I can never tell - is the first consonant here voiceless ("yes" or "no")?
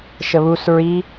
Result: yes